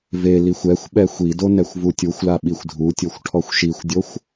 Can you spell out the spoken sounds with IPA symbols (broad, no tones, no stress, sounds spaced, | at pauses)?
v e l i xʷ ɛ xʷ ɓ ɛ xʷ i d o n ɛ xʷ v u tʲ u xʷ l a ɓ i xʷ dʱ u tʲ o xʷ ʈʰ ɔ xʷ ʃ i xʷ dʲ o xʷ